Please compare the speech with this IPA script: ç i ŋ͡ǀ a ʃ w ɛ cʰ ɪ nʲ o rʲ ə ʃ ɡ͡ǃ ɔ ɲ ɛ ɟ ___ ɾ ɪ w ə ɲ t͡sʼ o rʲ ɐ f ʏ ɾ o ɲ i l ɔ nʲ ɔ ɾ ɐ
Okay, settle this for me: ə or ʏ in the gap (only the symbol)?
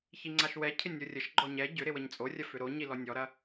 ʏ